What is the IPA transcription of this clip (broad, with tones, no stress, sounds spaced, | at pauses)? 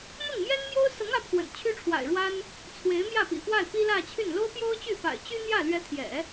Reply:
n̪ ʊ˥˩ ŋ m j ɛ˥ n m j o˥ ʊ̯ s ɤ˧˥ ŋ ä˧˥ pʰ w ə̰˨˩ n t͡ɕʰ y˥ ʈ͡ʂʰ w a̰˨˩ ɪ̯ ɻ w a˥ n | t͡sʰ w e˧˥ ɪ̯ m j ä˥˩ p ḭ˨˩ f w a˥˩ ɪ̯ p i˥ l ä˥˧ t͡ɕʰ y˥˩ n l o˥ ʊ̯ p j o˥ ʊ̯ t͡ɕ y˥˩ f a̰˨˩ ɪ̯ t͡ɕ y˥ n̪ j ä˥˩ l ɥ ɛ˧˥ t̪ʰ j ɛ̰˨˩˦